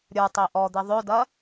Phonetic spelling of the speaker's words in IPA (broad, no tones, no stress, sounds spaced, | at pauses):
ɾʲ ə˞ tˤ e ʔ ɔ d̪ e ðˤ ø d ɐ